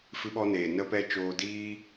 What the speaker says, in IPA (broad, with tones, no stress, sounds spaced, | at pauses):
f ɨ˧ ɓ ɔ˧ n eː˨ n ə˧ p ɛ˧ t͡ʃ oː˧ d iː˦